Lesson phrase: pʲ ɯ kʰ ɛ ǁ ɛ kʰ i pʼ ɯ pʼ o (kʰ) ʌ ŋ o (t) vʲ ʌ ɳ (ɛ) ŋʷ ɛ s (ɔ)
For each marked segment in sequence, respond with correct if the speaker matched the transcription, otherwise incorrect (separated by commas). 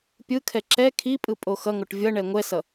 incorrect, incorrect, correct, incorrect